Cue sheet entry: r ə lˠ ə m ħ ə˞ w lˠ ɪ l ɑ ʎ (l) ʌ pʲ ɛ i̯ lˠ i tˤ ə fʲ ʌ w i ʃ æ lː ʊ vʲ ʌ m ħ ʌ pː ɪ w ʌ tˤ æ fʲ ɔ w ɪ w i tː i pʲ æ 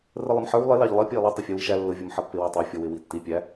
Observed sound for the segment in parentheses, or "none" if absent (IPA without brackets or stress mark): lˠ